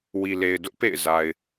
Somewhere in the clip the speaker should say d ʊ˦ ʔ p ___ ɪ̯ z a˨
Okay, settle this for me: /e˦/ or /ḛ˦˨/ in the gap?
ḛ˦˨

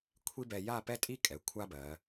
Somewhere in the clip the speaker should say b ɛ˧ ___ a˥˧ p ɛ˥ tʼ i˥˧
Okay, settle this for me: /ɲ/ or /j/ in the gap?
j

